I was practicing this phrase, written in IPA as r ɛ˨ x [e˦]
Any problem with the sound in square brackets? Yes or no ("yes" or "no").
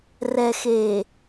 yes